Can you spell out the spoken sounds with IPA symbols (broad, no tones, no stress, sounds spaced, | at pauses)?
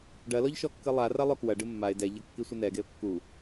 ɖ ɐ l ɔ ʎ ʃ ɔ kː ɨ lˠ a r ɐ lˠ o k w ɐ ɖ ɨ mː a ɪ̯ d ɛ ʎ ɐ kː i sʷ ɨ n ɛ ɡ e ʊ̯ kː u